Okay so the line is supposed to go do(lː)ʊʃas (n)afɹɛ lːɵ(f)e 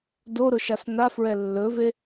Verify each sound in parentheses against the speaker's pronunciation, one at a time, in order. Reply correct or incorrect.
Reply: incorrect: ɾ, correct, incorrect: v

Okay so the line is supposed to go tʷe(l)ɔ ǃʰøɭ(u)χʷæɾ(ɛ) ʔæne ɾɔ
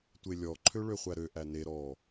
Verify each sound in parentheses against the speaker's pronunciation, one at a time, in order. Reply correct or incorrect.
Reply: incorrect: lʲ, incorrect: ø, incorrect: ø

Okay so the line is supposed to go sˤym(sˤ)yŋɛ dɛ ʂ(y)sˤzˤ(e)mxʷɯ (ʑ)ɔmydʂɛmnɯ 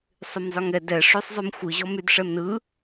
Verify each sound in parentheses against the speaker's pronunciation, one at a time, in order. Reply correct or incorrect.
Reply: incorrect: zˤ, correct, incorrect: y, correct

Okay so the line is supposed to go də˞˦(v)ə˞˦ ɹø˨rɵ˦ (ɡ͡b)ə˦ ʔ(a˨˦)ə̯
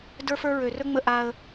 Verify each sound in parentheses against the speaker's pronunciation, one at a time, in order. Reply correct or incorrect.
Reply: incorrect: f, incorrect: ŋ͡m, incorrect: a˦

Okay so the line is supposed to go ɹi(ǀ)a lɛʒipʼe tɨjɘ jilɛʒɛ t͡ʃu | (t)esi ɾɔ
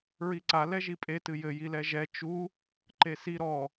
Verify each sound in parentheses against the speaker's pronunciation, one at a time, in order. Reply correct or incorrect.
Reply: correct, incorrect: ǃ

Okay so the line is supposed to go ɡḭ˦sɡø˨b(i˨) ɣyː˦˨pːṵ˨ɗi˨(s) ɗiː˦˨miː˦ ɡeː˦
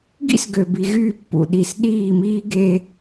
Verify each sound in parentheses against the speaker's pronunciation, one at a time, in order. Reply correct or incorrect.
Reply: correct, correct

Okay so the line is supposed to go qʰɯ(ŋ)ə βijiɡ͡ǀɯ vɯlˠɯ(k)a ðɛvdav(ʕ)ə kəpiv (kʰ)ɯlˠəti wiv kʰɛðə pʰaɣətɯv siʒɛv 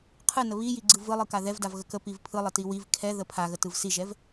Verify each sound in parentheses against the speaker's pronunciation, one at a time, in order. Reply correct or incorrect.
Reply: incorrect: n, correct, incorrect: ɣ, incorrect: pʰ

